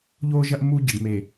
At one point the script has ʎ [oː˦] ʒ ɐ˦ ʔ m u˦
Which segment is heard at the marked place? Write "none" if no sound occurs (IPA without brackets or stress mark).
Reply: oː˦